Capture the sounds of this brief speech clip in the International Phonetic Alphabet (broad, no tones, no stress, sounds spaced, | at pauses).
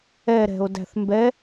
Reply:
ɛ ɾ ɛ̤ o̯ d æ̤ θ m b ɛ